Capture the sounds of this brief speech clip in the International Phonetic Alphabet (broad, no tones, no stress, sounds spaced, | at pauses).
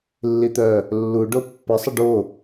lː i t̪ œ | lː u ɖ o pː ə sˤ ə ɖ o